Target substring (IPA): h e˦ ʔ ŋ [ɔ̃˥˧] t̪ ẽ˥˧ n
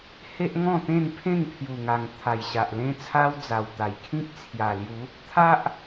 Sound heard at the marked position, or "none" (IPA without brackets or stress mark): ɔ̃˥˧